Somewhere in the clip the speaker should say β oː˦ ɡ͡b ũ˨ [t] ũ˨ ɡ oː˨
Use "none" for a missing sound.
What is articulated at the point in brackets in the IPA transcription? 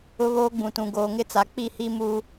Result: t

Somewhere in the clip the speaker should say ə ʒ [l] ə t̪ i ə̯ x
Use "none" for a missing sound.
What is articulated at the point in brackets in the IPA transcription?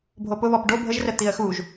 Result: r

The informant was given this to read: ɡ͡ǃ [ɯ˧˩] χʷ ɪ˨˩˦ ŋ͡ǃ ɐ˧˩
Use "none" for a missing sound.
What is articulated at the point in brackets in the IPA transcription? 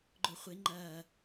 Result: ʊ˧˩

